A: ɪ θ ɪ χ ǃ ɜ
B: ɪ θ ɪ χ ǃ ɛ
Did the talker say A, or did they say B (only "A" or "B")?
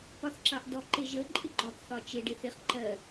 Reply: A